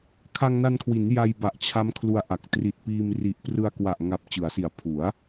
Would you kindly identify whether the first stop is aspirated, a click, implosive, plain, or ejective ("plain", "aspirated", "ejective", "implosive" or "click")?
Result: aspirated